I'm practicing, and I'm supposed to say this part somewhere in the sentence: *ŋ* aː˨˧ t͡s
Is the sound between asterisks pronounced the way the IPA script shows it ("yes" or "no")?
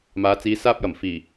no